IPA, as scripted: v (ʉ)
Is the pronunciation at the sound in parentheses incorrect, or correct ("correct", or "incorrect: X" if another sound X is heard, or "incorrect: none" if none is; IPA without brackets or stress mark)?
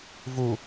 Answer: incorrect: u